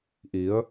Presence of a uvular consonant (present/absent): absent